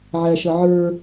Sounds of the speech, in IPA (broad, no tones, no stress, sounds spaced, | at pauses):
ʕ æ ʃ ʌ ʕ ə˞